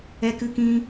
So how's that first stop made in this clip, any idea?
plain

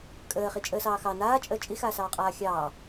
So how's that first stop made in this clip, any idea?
ejective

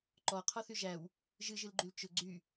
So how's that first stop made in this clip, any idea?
click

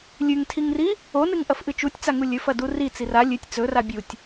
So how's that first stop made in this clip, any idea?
aspirated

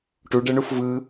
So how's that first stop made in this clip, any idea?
plain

